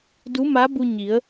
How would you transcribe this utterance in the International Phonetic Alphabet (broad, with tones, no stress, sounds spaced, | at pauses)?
d u˧˥ m a˧˥ b u˧ ɲ i˩˧ ə̯